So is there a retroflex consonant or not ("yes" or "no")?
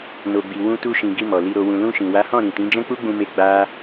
no